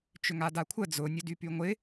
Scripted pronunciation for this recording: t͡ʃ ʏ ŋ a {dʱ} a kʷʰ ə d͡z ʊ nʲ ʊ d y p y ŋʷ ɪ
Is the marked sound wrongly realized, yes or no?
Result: yes